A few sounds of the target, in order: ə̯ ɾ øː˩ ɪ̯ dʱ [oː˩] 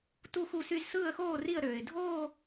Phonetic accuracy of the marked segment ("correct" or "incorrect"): incorrect